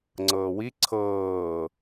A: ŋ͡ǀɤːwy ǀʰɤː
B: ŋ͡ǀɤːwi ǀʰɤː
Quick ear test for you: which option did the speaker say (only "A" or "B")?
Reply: B